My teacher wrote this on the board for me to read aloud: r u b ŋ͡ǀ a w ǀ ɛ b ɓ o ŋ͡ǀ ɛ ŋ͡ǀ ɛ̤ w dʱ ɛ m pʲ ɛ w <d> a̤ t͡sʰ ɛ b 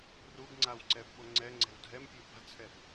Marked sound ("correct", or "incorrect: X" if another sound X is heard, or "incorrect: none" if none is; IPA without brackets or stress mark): incorrect: b